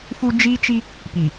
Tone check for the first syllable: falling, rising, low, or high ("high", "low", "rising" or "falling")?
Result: high